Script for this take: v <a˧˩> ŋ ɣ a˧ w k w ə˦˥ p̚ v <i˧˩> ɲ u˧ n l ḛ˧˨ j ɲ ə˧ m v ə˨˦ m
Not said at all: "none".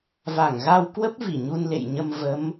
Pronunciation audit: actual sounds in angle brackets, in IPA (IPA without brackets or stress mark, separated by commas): a˧˩, i˧˩